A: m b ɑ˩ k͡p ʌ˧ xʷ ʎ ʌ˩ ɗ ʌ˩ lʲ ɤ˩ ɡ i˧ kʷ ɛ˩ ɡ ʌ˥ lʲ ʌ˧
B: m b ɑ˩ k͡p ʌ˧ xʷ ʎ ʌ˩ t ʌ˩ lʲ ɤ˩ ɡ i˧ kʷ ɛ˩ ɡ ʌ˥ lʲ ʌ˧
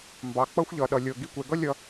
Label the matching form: A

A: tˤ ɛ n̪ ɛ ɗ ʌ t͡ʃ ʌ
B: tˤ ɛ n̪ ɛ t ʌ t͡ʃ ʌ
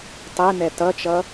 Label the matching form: B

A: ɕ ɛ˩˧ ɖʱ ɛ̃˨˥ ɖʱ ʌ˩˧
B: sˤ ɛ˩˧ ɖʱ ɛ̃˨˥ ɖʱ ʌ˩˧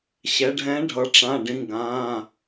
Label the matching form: A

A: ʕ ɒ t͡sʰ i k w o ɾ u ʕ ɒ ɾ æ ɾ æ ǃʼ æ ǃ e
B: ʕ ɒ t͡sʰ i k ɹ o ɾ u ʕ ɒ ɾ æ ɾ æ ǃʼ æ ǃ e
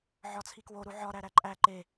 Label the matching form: A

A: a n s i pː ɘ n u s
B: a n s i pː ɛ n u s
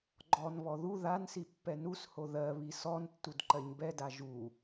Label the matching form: B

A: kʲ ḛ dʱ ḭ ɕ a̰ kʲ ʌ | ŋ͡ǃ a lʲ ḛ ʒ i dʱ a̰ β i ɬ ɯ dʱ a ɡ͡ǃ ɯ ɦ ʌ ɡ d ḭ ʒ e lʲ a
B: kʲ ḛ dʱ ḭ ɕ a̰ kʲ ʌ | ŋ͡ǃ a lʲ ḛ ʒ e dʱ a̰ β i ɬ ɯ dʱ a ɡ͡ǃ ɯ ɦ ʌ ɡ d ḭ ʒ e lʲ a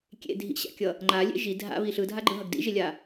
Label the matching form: A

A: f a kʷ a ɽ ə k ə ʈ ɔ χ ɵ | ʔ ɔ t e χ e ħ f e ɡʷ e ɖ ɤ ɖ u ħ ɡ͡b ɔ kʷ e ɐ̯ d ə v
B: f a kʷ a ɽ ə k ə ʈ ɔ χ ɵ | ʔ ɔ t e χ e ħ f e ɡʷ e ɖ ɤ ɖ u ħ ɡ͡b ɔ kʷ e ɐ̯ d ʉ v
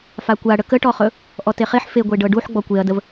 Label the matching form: A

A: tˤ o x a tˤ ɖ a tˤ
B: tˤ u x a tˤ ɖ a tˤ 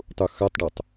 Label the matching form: B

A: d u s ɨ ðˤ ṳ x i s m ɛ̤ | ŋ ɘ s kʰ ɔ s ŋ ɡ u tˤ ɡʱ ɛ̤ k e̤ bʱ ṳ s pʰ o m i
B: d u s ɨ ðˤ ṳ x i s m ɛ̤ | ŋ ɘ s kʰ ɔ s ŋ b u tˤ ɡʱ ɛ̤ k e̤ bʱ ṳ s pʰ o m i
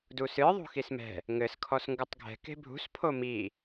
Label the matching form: A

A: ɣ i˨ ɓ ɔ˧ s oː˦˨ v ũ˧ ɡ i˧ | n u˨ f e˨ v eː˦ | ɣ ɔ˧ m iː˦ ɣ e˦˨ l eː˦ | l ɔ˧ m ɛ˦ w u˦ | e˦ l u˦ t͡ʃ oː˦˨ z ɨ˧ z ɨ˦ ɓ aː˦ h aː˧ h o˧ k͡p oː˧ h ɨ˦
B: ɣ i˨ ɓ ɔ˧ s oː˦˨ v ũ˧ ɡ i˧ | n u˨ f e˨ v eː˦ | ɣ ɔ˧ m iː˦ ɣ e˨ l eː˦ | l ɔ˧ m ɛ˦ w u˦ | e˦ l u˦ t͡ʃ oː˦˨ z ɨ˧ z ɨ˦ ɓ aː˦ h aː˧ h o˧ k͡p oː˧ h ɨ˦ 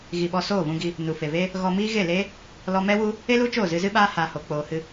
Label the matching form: A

